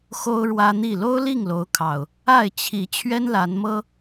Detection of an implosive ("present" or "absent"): absent